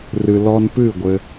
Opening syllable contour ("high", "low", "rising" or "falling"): low